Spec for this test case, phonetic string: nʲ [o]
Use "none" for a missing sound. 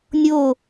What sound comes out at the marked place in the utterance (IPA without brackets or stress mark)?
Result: o